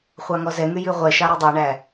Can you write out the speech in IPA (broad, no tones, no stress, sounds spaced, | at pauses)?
χʷ ɑ ŋ ɔ z ɛ ŋ y j ʉ ʁʷ ɛ ʃ ɑ ɾ ʉ dˤ e ɳ æ